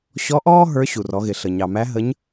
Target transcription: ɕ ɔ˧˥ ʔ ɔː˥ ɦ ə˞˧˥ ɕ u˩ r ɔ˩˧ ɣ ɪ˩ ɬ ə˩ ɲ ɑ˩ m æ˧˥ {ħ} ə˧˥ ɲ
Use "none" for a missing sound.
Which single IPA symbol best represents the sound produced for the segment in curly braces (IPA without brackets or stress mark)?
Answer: ɦ